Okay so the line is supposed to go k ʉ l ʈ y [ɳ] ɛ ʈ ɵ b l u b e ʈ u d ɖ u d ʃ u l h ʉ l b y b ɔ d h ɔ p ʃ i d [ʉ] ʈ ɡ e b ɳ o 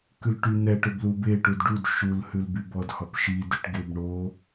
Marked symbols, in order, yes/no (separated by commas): no, yes